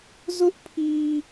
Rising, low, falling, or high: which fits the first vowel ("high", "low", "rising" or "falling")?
high